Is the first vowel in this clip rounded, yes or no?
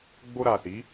yes